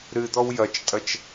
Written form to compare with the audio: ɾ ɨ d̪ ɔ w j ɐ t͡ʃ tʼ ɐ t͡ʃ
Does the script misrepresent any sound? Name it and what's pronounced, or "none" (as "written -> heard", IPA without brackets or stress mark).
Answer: none